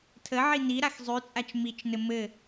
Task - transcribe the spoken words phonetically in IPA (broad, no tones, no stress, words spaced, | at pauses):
tʰəʕi ni ɾaxzˤʉt͡sʼat͡ʃ mit͡ʃnɘ mɘ